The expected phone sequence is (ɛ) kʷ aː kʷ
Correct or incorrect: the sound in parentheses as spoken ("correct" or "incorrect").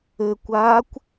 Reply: incorrect